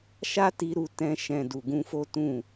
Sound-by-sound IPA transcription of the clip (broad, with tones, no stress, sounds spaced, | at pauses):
ʃ a˦ t i˧ ɾ u˧ t ɛ̃˧ ʃ ɛ̃˨ d u˨ ɡ ũ˧ f o˦ t ũ˦˨